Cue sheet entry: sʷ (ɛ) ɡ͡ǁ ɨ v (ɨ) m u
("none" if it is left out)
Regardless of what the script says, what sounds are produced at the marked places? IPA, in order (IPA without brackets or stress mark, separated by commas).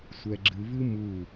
ɛ, ɨ